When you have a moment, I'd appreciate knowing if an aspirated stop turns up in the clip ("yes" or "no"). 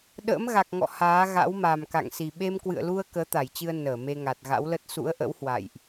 no